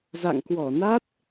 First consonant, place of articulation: alveolar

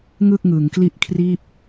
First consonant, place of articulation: velar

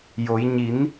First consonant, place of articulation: palatal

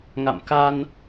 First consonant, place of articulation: velar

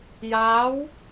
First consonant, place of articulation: palatal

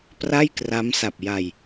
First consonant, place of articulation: labial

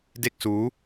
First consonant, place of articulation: alveolar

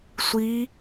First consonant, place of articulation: alveolar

